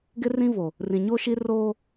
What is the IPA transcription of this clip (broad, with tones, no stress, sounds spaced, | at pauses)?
ɡ ɪ˦ r ĩ˦ v o˨ | r ĩ˨ ɲ o˦ ʃ i˦ r oː˦